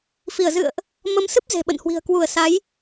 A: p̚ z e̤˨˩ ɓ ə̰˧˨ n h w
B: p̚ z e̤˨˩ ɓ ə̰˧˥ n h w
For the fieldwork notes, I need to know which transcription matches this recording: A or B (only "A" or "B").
A